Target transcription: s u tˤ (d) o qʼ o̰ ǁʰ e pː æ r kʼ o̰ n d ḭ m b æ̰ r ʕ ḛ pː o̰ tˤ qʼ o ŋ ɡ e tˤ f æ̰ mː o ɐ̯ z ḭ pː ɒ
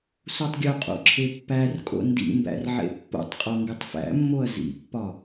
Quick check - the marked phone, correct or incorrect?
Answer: incorrect: ɡʲ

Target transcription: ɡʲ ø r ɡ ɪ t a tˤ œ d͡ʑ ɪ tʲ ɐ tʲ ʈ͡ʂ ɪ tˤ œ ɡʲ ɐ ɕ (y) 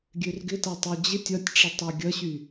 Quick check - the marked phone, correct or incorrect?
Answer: correct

